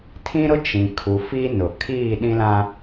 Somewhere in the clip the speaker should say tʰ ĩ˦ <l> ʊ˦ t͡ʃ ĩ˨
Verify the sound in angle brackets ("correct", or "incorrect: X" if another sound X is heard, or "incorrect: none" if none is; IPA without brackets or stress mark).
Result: incorrect: ɾ